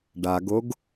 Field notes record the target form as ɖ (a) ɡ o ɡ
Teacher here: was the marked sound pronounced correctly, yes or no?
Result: yes